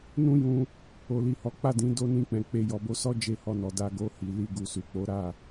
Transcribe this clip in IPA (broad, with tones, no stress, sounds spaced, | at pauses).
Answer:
n ũ˦ j ũ˧ | o˨ l i˨ h ɔ˨˦ k͡p a˦˨ d ĩ˨˦ d o˧ n ĩ˧ k͡p ɛ̃˨ k͡p e˧ j ɔ˨ b o˧ s ɔ˦ d͡ʒ e˦˨ h ɔ˧ n ɔ˨ d a˧ ɡ o˧ h i˨ l i˧ ɡ u˨ s u˨ k͡p o˨˦ ɾ a˦˨